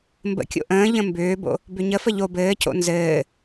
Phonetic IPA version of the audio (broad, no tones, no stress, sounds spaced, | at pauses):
m b ə̰ kʲ o̰ ʔ ə̃ː ʎ ə̃ m b ʏː b o̰ | b ʏ ɲ ə f ə ʎ o b ɘː c o̰ n z ɘː